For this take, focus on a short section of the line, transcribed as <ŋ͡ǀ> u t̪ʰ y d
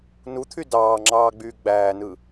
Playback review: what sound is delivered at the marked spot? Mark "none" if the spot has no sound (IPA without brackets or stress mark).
n